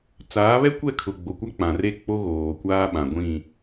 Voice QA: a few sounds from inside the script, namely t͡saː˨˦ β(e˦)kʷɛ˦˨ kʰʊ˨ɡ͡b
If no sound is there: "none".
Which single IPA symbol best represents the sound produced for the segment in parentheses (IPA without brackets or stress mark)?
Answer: ɛ˦